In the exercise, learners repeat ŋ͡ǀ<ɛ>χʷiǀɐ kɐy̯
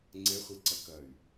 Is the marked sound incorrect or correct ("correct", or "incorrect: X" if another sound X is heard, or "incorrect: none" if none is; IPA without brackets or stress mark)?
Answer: correct